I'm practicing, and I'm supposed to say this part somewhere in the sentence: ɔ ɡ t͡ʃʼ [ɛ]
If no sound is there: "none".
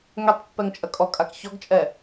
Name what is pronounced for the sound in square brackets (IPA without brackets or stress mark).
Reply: ɛ